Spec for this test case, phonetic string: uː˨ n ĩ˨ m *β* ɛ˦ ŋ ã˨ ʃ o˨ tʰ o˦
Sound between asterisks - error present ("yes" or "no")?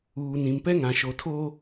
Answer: yes